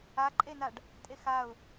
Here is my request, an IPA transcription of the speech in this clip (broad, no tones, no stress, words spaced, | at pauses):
aǃʼenaɖ | tʼexaʊ̯